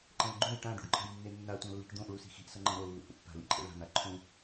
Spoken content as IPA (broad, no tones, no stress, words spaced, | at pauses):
ǃɛ̃lɡ͡ǃõj ʈã ɖṵɖǃʰa̤jnːenːa tʷãlːi̤ʈd̪õʔ ɭusi̤xi̤ʔ sʌŋ͡ǃɛ̃ɾo lːṵhṵpːa̤ lḭǃʼḛɭa̤ n̪aǃʰũ